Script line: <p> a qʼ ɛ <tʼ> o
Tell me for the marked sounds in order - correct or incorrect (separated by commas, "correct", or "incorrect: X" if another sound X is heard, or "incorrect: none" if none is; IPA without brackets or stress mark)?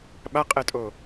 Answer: incorrect: ɓ, correct